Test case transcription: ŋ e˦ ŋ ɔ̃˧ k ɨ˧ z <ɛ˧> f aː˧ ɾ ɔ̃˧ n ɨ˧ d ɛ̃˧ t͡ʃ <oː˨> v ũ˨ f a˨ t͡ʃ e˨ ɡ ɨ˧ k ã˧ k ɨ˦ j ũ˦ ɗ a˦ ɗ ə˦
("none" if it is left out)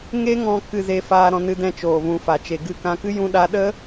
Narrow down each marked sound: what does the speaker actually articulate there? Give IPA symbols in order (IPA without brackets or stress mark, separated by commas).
e˧, oː˨